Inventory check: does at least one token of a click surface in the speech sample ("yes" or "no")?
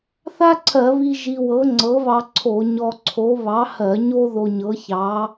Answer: yes